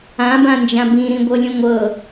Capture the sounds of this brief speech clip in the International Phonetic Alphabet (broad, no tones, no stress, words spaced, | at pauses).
ãbãnd͡ʒã bĩɾĩɡʷɤlʲũ ŋʷɤ